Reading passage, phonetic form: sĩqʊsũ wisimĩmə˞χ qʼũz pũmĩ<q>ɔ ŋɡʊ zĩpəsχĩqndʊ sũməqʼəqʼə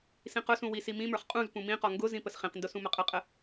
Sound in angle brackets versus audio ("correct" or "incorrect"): correct